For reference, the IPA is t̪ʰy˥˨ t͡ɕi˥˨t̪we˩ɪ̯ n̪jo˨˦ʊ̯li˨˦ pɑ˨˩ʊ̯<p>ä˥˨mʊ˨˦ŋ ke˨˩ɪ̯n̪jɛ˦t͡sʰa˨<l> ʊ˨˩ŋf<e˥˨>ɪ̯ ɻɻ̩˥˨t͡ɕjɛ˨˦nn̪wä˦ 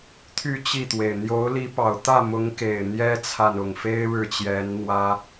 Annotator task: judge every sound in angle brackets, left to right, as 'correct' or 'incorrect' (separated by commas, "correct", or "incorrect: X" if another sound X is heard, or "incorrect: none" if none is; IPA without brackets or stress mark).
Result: incorrect: t̪, incorrect: n, incorrect: e˦